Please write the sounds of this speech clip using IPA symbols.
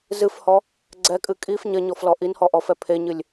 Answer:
zɨfhɔ | ɡ͡ǀɛkʼɨ kʼif ɲɐɲɔflɔ ʔinhɔʔɔfɛ pʰeɲɨlʲ

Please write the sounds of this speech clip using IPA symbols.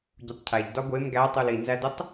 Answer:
ɟutˤcʰæʎ dɒɡʷem ɡætˤul inzædutˤ

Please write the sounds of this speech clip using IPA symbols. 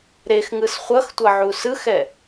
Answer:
ɾexŋɯs χʷʌxtʷʌʕu sɯxɛ

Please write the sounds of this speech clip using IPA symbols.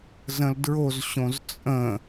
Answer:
zə̃ldɹozɕõz t͡sʼə̃

